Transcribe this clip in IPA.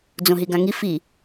d͡z õ ɦ i ɡ ã ŋ i f i

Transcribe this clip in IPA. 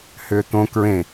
h ʏː t̪ õ k ɹ ẽ

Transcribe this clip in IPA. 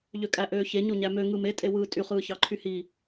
ʎ ø kʼ æ ʔ øː ç e ɲ o ɲ æ m ø ŋ ɯ m e tʼ e w ɯː tʼ y χ ɯː ç ɑ ǃʰ y h i

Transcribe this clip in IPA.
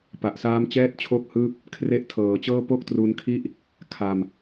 p a˨˩ ʔ s aː˦˥ m t͡ɕ ɛː˥˩ t̚ t͡ɕʰ o˥˩ k̚ h ɯː˥˩ p̚ | kʰ r e˦˥ ʔ tʰ ɤː˩˦ t͡ɕ ɤː˥˩ p o˥˩ k̚ t r u˧ n kʰ i˥˩ ʔ | kʰ a˧ m

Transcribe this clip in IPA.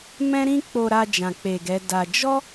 m ɛ̃˦ ɾ ĩ˦ k͡p o˧ ɾ a˧ d͡ʒ ã˨ k͡p e˨ ɡ ɛ˨˦ d a˧ d͡ʒ ɔ˦

